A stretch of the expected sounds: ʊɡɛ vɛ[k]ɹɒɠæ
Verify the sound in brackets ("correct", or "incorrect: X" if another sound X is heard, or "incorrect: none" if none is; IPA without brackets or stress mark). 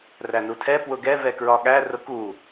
correct